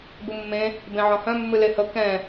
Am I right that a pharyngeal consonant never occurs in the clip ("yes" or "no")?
no